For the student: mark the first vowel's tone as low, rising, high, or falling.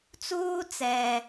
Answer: high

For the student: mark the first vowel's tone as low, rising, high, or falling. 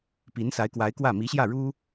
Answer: rising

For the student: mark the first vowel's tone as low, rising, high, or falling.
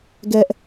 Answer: high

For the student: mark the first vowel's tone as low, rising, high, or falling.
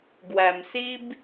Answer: low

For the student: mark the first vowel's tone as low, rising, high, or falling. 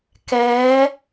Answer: rising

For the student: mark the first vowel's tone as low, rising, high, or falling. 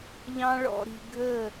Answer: high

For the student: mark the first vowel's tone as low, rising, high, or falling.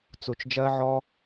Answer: low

